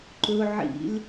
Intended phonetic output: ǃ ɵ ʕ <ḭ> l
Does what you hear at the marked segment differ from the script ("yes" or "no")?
no